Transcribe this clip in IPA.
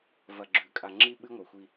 v ɐ˨ ɡ͡ǁ ʉ˨ kʼ a˨ ŋ͡ǁ i˦ ɓ ɨ˦ ŋʷ e˨ xʷ i˦

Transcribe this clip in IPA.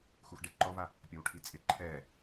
x u x ɖ e ǃ ɔ v a | pʲ ɔ w ʈʰ i t͡sʼ ɪ ǃʰ ɛː

